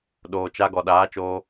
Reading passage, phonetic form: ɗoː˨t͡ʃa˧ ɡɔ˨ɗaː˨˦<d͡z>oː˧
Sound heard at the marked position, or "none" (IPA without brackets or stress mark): t͡ʃ